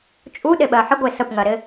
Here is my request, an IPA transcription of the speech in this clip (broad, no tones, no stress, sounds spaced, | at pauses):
t͡ʃʼ u ɗ e ɓ ɜ ħ ɪ ɡʷ e s ə p ŋ ɜ ɾ ɪ